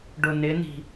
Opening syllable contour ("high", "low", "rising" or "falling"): low